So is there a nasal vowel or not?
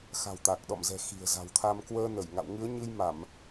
no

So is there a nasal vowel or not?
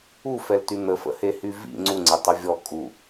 no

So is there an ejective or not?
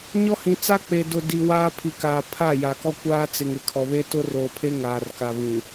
no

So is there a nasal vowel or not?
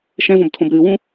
yes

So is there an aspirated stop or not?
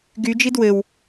no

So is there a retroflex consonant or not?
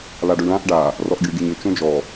yes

